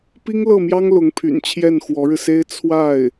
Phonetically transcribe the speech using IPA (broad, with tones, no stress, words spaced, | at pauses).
pi˥ŋlɤ˥˩mjɑ˥ŋ lʊ˧˥ŋpʰy̰˨˩n t͡ɕʰjɛ˥˩nxwɔ˧˥ɻɻ̩˧se˥ɪ̯ t͡sʰwa˥˩ɪ̯